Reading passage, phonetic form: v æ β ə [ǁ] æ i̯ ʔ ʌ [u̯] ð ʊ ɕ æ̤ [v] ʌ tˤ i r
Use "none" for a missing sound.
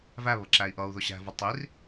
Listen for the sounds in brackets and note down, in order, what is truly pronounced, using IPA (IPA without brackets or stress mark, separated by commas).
ǁ, u̯, v